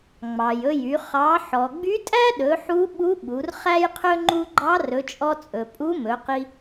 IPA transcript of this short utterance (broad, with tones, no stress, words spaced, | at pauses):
ŋ͡mɑ˩jɵ˧jy˩˧ χɑ˩˧ ħɔ˩ɡ͡by˧˥tʼæ˥ɗɵ˩˧ ħu˧˥ɓu˧˥ ɓu˩˧rχæ˥jqʰɵ˥ ŋ͡ǃu˥ ɡ͡ǃɑ˧˥rɵ˩˧t͡ʃʼɔ˧t͡sʼɵ˩ pʼu˧˥mɵ˩˧qi˧